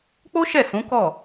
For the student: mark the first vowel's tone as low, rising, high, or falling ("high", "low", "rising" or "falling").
high